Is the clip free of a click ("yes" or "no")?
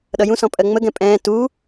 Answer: yes